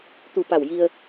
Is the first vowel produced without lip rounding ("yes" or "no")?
no